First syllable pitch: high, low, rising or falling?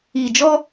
low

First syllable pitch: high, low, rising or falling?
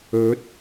rising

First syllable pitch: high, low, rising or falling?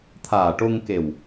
low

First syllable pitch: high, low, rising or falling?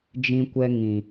high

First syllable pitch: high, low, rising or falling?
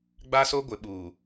high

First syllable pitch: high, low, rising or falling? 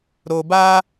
low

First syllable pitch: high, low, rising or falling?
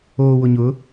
low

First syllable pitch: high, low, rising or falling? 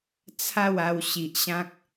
falling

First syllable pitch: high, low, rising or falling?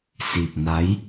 low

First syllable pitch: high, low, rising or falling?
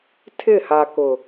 falling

